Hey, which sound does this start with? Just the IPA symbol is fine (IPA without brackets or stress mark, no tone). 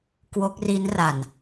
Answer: k